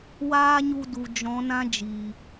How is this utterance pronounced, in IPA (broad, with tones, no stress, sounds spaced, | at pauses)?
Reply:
w aː˦ ɲ u˧ d u˨ d͡ʒ ɔ̃˨˦ n ã˦ d͡ʒ iː˨